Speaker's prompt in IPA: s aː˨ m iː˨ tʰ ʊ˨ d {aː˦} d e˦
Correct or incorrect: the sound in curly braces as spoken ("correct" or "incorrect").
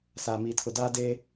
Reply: correct